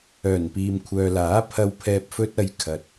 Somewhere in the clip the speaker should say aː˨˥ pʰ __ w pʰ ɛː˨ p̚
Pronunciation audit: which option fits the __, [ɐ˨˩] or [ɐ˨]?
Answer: ɐ˨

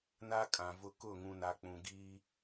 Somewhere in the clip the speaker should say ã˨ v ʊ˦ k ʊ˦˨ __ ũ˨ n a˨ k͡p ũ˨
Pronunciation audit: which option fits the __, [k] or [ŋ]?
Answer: ŋ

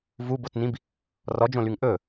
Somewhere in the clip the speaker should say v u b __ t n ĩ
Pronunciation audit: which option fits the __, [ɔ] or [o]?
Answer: o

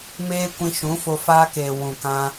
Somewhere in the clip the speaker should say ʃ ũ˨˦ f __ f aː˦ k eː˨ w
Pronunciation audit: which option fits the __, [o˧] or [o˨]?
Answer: o˧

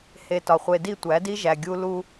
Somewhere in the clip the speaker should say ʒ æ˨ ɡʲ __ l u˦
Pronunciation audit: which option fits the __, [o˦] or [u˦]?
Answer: u˦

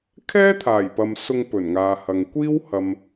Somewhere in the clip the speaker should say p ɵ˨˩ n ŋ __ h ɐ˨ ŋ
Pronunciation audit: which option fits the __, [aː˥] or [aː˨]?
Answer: aː˨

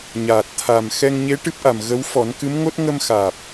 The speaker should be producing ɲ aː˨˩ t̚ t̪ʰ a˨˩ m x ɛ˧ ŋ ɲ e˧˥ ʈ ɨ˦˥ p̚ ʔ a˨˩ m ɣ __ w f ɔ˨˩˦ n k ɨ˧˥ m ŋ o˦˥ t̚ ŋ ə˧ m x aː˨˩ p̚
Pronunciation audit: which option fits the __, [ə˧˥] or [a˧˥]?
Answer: ə˧˥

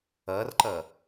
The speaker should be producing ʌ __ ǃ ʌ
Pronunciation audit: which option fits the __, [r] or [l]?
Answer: r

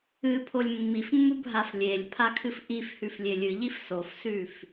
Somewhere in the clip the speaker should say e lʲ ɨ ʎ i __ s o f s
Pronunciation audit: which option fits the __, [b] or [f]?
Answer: f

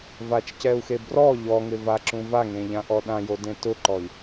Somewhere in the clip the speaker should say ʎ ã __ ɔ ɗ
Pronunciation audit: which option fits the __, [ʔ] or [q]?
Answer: ʔ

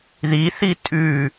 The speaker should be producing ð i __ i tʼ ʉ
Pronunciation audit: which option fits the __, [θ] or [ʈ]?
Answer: θ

